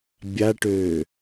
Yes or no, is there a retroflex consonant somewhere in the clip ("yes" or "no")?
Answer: yes